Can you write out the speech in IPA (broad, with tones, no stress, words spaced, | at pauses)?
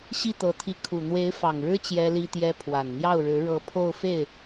ɕi˥˩t̪ɤ˧˥t̪ʰi˧˥ kʰu˨˩n̪we˧˥ɪ̯ fɑ˨˩ŋɻɻ̩˥ t͡ɕjɛ˥li˥t̪jɛ˥ pʰwa˨˩nn̪jɑ˥˩ʊ̯ɻɻ̩˧˥ ɻɤ˧˥ pʰo˥˧ʊ̯fe˥˩ɪ̯